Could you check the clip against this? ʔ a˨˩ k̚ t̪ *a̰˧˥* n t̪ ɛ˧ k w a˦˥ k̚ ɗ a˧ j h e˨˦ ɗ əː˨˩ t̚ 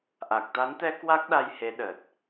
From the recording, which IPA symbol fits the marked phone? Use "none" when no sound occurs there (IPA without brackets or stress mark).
a˨˦